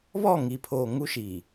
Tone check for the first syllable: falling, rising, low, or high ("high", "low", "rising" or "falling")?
falling